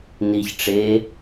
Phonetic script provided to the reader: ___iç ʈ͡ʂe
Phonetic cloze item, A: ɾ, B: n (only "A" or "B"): B